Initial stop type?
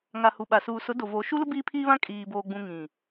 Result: implosive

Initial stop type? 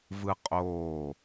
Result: ejective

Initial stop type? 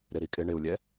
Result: ejective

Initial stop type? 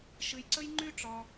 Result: click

